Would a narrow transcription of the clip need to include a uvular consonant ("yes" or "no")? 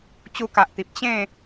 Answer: no